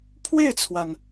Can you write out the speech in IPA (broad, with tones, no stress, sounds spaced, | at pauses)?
pʰ w e˥˩ ɪ̯ t͡sʰ w a˩ n